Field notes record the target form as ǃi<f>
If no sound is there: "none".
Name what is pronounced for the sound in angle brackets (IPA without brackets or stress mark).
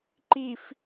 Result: f